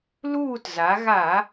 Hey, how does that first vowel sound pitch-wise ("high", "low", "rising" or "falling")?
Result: falling